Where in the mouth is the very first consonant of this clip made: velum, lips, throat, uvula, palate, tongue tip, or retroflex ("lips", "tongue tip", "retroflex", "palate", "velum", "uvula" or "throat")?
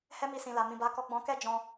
throat